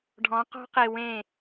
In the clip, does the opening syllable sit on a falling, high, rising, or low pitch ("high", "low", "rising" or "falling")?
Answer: rising